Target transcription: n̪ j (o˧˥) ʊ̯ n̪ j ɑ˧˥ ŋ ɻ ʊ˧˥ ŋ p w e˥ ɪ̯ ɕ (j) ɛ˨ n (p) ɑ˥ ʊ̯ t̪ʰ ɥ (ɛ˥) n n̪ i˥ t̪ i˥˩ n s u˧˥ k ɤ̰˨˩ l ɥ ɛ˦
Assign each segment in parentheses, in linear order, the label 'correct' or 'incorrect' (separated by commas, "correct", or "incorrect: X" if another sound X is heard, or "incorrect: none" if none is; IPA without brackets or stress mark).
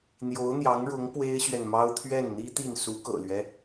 correct, incorrect: ɥ, incorrect: m, incorrect: ɛ˥˩